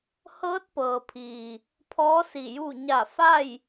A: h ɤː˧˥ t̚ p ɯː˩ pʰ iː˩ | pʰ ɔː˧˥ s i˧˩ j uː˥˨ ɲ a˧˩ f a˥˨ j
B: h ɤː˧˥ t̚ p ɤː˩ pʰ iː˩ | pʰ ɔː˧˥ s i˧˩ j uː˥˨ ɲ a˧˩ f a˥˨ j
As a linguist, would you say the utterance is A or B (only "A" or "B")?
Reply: B